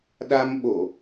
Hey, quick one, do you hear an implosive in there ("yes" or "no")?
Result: yes